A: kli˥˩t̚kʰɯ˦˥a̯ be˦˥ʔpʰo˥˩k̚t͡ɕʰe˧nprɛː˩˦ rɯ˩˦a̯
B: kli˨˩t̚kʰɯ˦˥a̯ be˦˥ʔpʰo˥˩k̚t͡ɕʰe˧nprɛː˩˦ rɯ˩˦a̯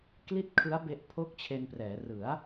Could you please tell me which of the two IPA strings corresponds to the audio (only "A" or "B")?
A